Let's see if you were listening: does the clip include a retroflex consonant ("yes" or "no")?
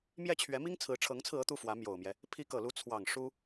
yes